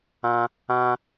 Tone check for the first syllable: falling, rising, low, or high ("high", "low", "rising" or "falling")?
high